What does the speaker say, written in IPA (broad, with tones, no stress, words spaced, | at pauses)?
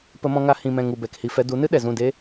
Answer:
pə˧mɔ̃˧ŋa˧ hĩ˨mɛ̃˨ ŋu˨bɛ˨khi˨fɛ˧ du˨˦nɨ˦ ɗɛ˨zũ˦˨ deː˦